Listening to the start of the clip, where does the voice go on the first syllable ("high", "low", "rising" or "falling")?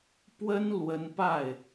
high